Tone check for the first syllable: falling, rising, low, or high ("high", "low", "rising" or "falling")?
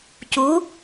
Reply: rising